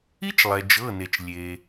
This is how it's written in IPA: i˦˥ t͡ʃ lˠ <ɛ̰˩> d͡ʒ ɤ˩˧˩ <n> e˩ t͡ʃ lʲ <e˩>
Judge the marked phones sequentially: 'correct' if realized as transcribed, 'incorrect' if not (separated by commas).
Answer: incorrect, correct, correct